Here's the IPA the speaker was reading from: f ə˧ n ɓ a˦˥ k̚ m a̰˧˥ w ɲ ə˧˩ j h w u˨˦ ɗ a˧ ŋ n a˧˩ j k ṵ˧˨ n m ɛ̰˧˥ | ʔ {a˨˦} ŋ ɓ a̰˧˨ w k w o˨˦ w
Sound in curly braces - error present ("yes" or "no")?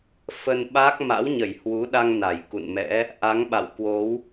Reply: no